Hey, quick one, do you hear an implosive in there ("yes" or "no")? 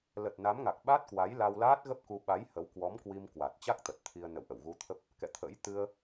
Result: yes